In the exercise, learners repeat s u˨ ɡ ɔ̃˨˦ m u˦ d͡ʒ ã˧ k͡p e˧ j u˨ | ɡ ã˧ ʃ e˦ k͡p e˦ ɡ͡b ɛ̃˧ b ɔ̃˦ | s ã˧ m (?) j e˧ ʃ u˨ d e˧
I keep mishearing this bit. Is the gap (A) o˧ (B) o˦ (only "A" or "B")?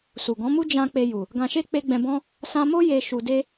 B